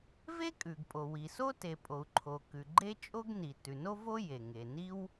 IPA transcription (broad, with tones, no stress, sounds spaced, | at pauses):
v e˥ kʼ ʉ˩ ɡ pʼ o˩ w i˩ s o˥ t e˩ pʼ o˩ u̯ ǃʰ o˩ k ʉ˩ ɡ͡ǃ e˥ t͡ʃʼ o˥ ɡ n i˩ t ʉ˩ n o˥ v o˥ j e˩ ŋ e˩ n i˥ w